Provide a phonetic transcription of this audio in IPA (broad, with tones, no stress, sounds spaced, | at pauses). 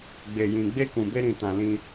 ɡ͡b e˨ j ĩ˨ ɡ͡b e˧ k ũ˨ b e˧ ɾ ĩ˨ t ã˨ l ĩ˧